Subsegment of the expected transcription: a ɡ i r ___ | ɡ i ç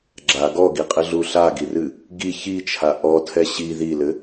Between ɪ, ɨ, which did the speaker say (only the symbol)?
ɨ